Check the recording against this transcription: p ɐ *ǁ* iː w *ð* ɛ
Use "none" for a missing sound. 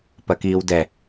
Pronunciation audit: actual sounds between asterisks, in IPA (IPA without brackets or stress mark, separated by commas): k, d